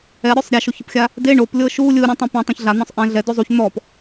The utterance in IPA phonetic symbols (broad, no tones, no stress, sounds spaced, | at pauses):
ɛ ɾʲ o sˤ ɾʲ a ʃ o ç ɯ p xʲ a | d e ɳ o p lʲ ɤ ʃ u lʲ ɯ ɾʲ ũ tˤ ɛ̃ p ẽ tˤ ẽ ç ɮ a n̪ ɔ̃ sˤ ʔ ɛ̃ ɮ ɛ d o zˤ u ç n̪ ɔ p